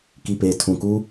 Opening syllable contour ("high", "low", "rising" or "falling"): low